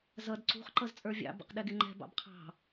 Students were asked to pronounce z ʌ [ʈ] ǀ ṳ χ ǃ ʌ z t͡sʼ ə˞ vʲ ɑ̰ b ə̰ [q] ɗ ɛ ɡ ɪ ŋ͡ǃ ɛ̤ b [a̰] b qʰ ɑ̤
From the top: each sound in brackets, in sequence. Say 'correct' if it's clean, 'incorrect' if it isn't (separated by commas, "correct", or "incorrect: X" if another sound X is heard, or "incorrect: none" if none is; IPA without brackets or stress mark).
incorrect: d, correct, incorrect: ɑ̰